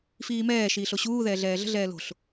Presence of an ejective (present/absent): absent